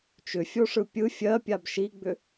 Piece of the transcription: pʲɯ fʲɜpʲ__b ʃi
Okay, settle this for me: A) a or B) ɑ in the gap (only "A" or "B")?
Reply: A